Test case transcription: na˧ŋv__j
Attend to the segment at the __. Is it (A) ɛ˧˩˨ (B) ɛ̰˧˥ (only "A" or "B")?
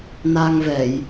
A